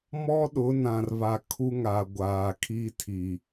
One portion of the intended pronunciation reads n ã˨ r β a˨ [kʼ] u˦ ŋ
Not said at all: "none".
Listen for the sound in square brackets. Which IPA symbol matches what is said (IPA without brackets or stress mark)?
kʰ